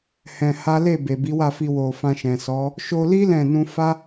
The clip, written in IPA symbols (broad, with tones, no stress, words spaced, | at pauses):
hɛ̃˧ha˦ le˦˨be˨ bi˨˦wa˦˨fi˧ wo˨ fã˧ʃɛ̃˨sɔ˨˦ | ʃo˧li˦ lɛ̃˦˨ nũ˧fa˦